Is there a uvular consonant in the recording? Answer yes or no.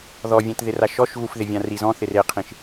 yes